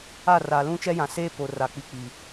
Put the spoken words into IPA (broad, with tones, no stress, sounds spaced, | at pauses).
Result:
a˦˨ r a˨ l ũ˦ t͡ʃ ɛ˦ j ã˨ s eː˦ p o˨ r a˨ k͡p i˨ k͡p i˨